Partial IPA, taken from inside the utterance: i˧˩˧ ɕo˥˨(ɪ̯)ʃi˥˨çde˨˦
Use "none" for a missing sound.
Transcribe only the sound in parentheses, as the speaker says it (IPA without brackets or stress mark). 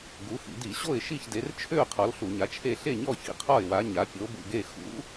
ɪ̯